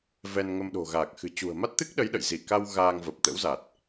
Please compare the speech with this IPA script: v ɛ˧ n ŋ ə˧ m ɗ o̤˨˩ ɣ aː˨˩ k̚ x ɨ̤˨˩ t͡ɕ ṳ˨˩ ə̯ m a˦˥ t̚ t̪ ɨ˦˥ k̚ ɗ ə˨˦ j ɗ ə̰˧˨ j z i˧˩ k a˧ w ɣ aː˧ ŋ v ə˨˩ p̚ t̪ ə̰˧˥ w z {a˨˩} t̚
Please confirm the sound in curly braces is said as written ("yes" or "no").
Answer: yes